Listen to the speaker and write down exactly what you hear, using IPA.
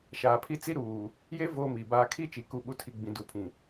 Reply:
ʃ aː˨ pʰ i˦ t͡s i˦ ɾ uː˨ | j e˦ v oː˦ m iː˨ b aː˦ kʰ i˦ t͡ʃ i˨ k u˦˨ ɓ u˦ tʰ i˨ ɡ͡b ĩ˨ d u˨ pʰ ĩ˨

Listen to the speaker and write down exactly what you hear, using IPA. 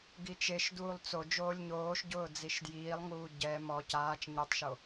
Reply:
ɡ i t͡ʃ e ʃ d uː lˠ t͡s o d͡ʒ oː lʲ ɲ oː ʃ ɟ ʊː d͡z i ʃ d j iː lˠ ŋ uː ɟ ɛ m ɔ c aː t͡ʃ ɲ i tˤ ʃ o

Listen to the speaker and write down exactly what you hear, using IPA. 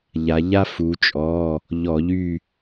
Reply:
ʎ a˩˧ ʎ a˦ f u˩˧ t͡ʃʼ ɔ˩˧˩ | ʎ ɔ˧˩˧ ʎ y˦˨

